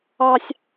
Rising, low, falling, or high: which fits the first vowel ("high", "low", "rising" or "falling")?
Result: high